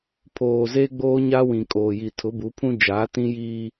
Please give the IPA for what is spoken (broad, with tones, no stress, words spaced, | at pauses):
pʰoː˨ze˦ ɡ͡boː˦ɲaː˦wĩ˨kʼoː˨ ji˨tʰʊ˨˦bu˨˦pʰũ˦ d͡ʒaː˨˦tĩ˦jiː˦